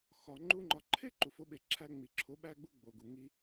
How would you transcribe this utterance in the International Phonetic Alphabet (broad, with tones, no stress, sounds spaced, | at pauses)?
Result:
x ɒ˨ ŋ͡ǃ u˧ ŋ͡ǃ ɒ˨ ǃʰ e˦ ǃ u˨ f o˧ ɓ e˨ ǁʰ æ˧ ŋ͡m i˨ ǁʰ o˨˦ ɓ æ˧ ɡ͡b u˧ ɡ͡b o˨ ɡ u˨ ŋ i˦